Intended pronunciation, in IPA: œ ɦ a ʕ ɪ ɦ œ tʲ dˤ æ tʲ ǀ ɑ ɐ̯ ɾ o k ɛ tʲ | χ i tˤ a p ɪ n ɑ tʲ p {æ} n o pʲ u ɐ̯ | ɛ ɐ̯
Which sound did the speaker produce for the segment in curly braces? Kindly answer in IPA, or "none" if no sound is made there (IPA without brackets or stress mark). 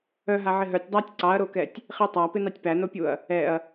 æ